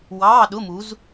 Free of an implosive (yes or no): no